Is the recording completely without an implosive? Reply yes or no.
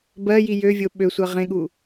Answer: no